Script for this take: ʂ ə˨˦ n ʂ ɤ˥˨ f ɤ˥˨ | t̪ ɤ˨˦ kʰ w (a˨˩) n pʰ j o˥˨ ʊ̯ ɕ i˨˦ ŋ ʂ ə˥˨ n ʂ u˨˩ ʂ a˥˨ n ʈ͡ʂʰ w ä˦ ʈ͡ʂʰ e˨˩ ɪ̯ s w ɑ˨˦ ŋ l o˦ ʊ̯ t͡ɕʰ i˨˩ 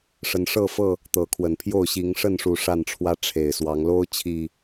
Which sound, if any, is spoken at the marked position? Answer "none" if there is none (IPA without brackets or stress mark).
ə˨˩